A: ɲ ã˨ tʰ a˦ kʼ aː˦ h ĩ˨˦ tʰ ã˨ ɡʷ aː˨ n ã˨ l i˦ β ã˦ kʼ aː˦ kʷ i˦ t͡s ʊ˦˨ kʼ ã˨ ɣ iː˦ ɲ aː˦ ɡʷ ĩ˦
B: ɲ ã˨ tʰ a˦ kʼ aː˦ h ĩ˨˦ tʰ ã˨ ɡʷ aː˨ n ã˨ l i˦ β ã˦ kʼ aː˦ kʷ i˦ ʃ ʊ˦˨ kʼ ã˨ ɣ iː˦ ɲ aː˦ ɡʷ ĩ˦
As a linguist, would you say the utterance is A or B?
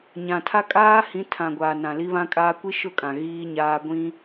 B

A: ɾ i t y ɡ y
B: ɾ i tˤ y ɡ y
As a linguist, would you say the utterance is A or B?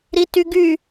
A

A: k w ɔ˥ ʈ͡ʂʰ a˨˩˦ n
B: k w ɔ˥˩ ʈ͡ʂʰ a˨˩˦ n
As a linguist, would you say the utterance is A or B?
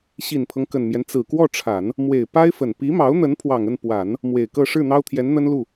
B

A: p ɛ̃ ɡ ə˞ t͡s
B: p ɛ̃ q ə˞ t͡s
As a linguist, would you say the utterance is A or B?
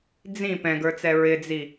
A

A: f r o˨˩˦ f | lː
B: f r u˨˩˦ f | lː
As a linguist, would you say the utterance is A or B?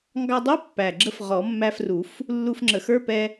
B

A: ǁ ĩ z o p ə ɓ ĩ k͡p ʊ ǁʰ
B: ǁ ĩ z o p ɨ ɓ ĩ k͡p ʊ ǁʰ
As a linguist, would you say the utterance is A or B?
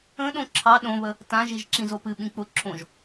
B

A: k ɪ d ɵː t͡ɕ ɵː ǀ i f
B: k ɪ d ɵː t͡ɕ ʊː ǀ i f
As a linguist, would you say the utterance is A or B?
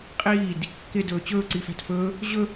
A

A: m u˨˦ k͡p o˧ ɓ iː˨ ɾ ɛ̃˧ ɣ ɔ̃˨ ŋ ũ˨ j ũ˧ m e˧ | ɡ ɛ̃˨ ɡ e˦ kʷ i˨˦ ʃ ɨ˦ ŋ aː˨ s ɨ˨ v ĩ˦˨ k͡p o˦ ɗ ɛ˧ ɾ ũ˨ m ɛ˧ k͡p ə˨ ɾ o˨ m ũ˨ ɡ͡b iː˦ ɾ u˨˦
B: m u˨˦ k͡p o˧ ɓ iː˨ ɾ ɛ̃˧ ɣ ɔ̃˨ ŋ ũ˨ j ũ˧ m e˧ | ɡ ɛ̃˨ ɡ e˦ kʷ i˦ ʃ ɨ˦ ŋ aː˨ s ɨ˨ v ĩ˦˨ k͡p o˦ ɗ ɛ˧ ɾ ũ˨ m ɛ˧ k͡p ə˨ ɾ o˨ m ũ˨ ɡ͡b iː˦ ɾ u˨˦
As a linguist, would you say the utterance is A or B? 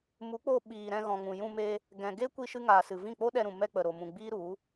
B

